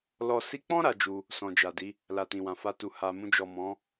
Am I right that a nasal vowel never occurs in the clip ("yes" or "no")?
no